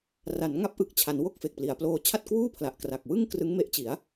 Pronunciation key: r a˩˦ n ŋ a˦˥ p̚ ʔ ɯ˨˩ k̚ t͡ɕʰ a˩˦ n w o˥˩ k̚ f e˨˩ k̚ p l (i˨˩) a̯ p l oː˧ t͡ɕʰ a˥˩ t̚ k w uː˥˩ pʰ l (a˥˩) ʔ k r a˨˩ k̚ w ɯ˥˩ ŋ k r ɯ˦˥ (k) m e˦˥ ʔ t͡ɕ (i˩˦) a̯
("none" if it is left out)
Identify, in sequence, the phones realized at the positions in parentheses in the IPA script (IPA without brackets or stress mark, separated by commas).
i˩˦, a˨˩, ŋ, i˩˦